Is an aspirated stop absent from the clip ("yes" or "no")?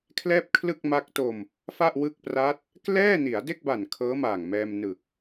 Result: no